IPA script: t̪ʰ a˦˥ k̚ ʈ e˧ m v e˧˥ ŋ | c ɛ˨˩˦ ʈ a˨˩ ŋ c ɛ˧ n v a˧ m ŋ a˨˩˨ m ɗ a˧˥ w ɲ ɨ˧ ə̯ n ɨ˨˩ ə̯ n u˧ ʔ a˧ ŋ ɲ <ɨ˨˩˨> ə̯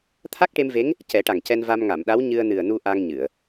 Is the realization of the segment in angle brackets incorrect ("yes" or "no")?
no